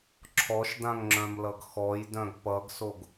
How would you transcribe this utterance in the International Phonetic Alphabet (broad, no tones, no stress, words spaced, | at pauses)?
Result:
ǁʰɔʃdãŋŋ͡ǁœ̃mlʌɡ xɔjdœ̃ɡ pʌɡsoɡ